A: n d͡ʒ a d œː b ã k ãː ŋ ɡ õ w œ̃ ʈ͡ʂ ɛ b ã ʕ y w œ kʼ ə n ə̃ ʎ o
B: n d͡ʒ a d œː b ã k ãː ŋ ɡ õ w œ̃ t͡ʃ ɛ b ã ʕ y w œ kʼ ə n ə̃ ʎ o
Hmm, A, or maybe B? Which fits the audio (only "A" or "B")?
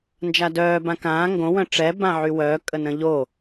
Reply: A